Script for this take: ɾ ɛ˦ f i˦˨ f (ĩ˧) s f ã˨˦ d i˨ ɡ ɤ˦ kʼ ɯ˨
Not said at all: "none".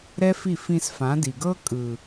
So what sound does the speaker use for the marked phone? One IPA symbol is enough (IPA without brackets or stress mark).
ĩ˧